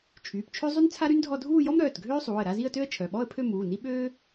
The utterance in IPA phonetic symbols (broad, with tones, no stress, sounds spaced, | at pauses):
t͡ʃʰ yː˩˧˩ p t͡ʃʰ ø˥ zˤ y˥ n t͡sʰ a˥ ɾ y˥ n dʱ ɔ˥˧ dʱ uː˥˧ j ɔ˥ m ɾ œː˩˧˩ t ɡʱ øː˥ sˤ uː˩˧˩ ə̯ ɾ a˥˧ z i˥˧ ə̯ t ø˥ ə̯ t͡ʃʰ œ˩˧˩ ɓ ɔ˥˧ ə̯ pʰ ø˥˧ m uː˩˧˩ n i˥ ɓ øː˥